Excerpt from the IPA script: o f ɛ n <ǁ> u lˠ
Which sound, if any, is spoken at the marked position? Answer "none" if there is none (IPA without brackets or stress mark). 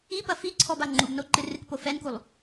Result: k